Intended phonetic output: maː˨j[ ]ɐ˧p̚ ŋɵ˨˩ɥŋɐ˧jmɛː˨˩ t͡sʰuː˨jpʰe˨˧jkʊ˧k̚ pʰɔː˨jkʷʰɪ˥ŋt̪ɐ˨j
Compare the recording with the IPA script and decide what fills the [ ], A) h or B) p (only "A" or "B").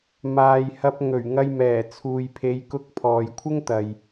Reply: A